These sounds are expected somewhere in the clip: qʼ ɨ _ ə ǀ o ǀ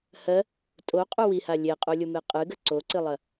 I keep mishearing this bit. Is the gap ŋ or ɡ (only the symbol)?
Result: ɡ